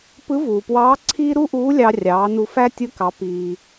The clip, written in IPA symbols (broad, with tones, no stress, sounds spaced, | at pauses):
p ɯ˧˥ v uː˩ p w ɑː˧˥ ǀʰ iː˥ ɾ u˥ ʔ uː˧˥ lʲ ɑ˧ rʲ ɑː˩˧ n u˧ f æ˥ tʲ ɯ˧˥ k ɑ˩˧ p iː˩